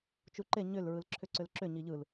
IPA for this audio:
t͡ʃ u ǃ e ɲ ʏ l ɹ ɯ l ǁʰ ʏ ǀ ʏ l ǁ ʏ ɲ i ʎ ɯ l

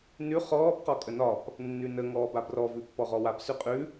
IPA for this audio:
n ʉ χ ɔː b q ɒ kʼ ə n ɒ p | nː ʉ n ə ŋ ɔː b a b r ɔ v ʉ pː ɔ ʁ ɔ w a p s ʉ qʼ ʉ

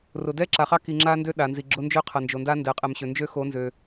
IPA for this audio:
r ʊ˨ d ɛ˦ ǁ a˨ χ ɑ˦ k i˨ ŋ͡ǁ a˦ n d ø˦ ɗ a˨ n z i˨ ɡ͡ǁ ʊ˦ n d͡ʒ ø˦ qʰ ɐ˨ n d͡ʒ o˨ n d a˦ n d ɛ˨ qʼ ɛ˨ m ɕ ø˨ n d͡ʒ ø˦ x o˨˦ n z ø˨

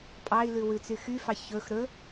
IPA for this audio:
pʼ ɑ i̯ l ʉ w ʉ t͡s y x y f ɑ ç ɵ x ɾ ɵ

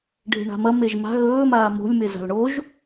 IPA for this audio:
ɖʱ e̤ ɳ a̤ m ɐ m e ʒ m a̤ ɣ ɵː m aː m o̤ lʲ m e z a̤ l ɳ o ʒ

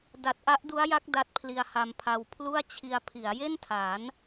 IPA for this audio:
d a˨˩ t̚ ʔ a˦˥ ʔ d u˦˥ a̯ j a˦˥ k̚ d a˦˥ t̚ pʰ l i˧ a̯ h a˧ m pʰ a˧ w pʰ l u˥˩ a̯ t͡ɕʰ i˧ a̯ pʰ i˩˦ a̯ j e˥˩ n tʰ a˩˦ n

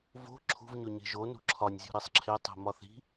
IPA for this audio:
v o̤ ǁʰ ṳ v ɲ o ɲ e̤ ʒ o n ṳ ǁʰ ɒ nʲ zʲ o̤ ɾ i sˤ ǁʰ e tˤ e̤ m ɒ θ i̤

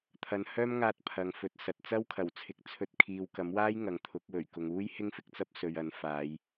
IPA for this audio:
t̪ʰ ɐ˨ n h œː˥ m ŋ aː˧ t̚ pʰ ɐ˨˧ ŋ f ɵ˨˥ t̚ s ɐ˨ t̚ t͡s ɐ˥ w kʰ ɐ˨˩ w t͡sʰ ɪ˨ k̚ t͡sʰ ɵ˧ t̚ kʰ iː˨ w k ɐ˨˥ m w aː˥ j ŋ ɐ˨ ŋ t̪ʰ ʊ˨˥ k̚ w ɵ˨˩ ɥ k ʊ˨ ŋ uː˥ j h ɪ˥ ŋ f ɪ˨ k̚ t͡s ɐ˥ p̚ s ɵ˨ ɥ ɐ˨˧ n f aː˨˧ j

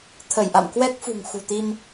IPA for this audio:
t̪ʰ ə˧˩ j ʔ a̰˧˨ m k w ɛ˦˥ k̚ f ṳ˨˩ ŋ x ṳ˨˩ t̪ i˧ m

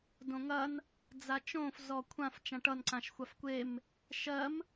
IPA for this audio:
d õ ŋ ɐ n | d͡z a t͡ʃ õ f z ɔ kʷʰ ã f t͡ʃ ã ʈ ʌ n ǀ ã ʃ xʷ a f kʷ e m | ʃ ɜ m

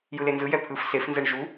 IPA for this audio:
j ɯ l e n z ɯ j ɛ pʰ ɯ f s e f n z ɛ ɳ ʒ u

